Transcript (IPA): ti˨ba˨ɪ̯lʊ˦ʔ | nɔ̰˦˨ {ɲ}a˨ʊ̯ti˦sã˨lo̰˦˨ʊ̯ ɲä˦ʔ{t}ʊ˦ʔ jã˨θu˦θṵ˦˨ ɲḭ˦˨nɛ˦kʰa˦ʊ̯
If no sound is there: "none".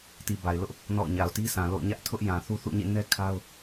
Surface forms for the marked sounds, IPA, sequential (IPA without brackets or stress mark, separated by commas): ɲ, tʰ